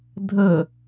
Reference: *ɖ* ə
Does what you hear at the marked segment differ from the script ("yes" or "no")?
yes